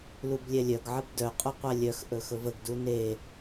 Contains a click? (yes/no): no